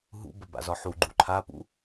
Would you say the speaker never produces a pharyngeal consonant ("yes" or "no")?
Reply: no